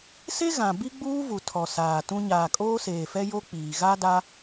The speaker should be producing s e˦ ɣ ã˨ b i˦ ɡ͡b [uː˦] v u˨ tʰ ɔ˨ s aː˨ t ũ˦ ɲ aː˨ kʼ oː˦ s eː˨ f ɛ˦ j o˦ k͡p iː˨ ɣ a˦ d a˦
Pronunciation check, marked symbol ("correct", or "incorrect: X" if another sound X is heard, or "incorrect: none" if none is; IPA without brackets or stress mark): correct